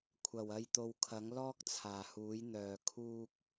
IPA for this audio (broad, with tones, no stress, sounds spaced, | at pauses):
kʷʰ ɐ˨˩ w ɐ˧ j t̪ o˨ w kʰ ɐ˨˥ ŋ l ɔː˥ k̚ t͡sʰ aː˨˩ h uː˨˥ j n̪ œː˨ kʰ uː˥ k̚